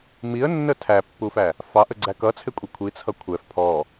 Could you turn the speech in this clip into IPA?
m i ə̯ nː ə tʰ æ pː u f æ | f ɑ ʔ ə ɡ͡ǀ æ k ʌ t͡sʰ ɪ kʷʼ i kʷʰ i t͡sʰ ʌ kʷʰ ɛ f pʰ ɔ

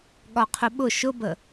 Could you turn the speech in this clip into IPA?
ɠ ɒ qʰ ʊ ɓ ʊ ʃ ʊ b ə

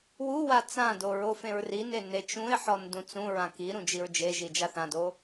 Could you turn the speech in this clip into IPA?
w u w a t͡s ã d o ɹ o f ẽ ɹ r i n e n e t͡ʃ ũ ɪ̯ ħ ɔ n d ũ t͡s ũ ɹ ã k i ɾ ũ d͡ʒ i ɹ d͡ʒ e ʒ i d͡ʒ a θ ã d o

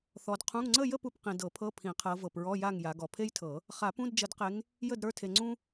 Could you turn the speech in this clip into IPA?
θ ɔ˨˦ d qʰ ũ˧˥˧ ŋ ŋ͡ǀ ə˥˨ j ə˥˨ p u˨ p q ĩ˨ d ɤ˨˩˦ pʰ ɤ˧˥˧ pʰ ĩ˨˩˦ qʰ ɤ˨˦ v ɤ˨ p ɹ ɔ˧˥˧ j a˥˨ ŋ j a˨˦ ɡ ɔ˨ pʰ e˥ j tʰ ɤ˨˩˦ | χ a˨˩˦ p ũ˧˥˧ d d͡ʒ ə˨˩˦ d q e˨˦ ŋ | j ə˥˨ d ɾ ə˞˧˥˧ tʰ e˨ ŋ͡ǀ ũ˥

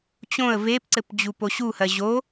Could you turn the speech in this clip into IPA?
t͡ɕ õ ə̯ v e p ǀ ɘ p d͡ʑ u p o ɕ u h ɜ ʑ o

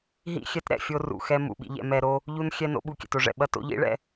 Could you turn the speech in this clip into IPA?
ɦ ḭ˦˨ xʲ ɛ˦ t ɾ ɛ̰˨ fʲ o˦ r ṵ˨ x ɛ˦ m ṵ˨ ɓ ḭ˦ ʎ ɛ̰˦ m ɛ˦ ɾ o˦ | ʎ u˦ n xʲ ɛ˦ n o̰˦ ɓ u˨ kʲ ɛ̰˨ t o˨ ʐ ɛ̰˨ ɓ ɐ˦ t o̰˦ ʎ ḭ˦ ɭ ɛ̰˦

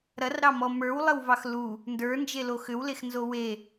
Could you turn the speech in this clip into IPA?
ɾ ɐ r ɾ ɑ m ɔ m ə˞ w lˠ ə w v ɑ x l u | n d ə˞ n d͡ʒ e l o x ʏ w l e x n z o w e

